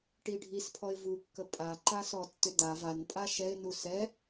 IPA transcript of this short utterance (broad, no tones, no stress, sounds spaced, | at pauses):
ʈ i ɖʱ i s pʰ ɔ ɪ̯ v u kː ə pʼ a ǃ a s ɔ tː ʏ d a v a n pʼ a ʃ ɛ ɪ̯ n u s ɛ